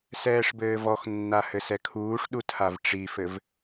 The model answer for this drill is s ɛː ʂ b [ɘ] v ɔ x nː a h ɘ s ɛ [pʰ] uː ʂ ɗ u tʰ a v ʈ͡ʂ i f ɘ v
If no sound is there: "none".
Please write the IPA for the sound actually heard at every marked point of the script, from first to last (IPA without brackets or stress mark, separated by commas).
ɘː, kʰ